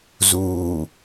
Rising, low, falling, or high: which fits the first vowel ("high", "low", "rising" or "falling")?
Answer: low